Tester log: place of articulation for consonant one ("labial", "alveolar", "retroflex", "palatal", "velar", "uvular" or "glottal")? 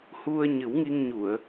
glottal